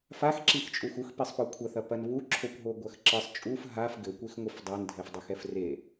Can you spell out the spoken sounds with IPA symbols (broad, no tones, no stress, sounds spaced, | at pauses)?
f a x ǁ i x t͡ʃʼ u x u x p i sˤ p ɔ kʷʰ ɐ θ ɐ p ɐ n β u ǁʰ o kʷ ɦ o ɡʷ ɐ x ǁ ɨ sˤ t͡ʃʼ u f ɦ a f ɡ ɘ kʷ e x ŋʷ ɨ f dˤ ɛ n dʱ ɛ f dˤ o x ɛ f r e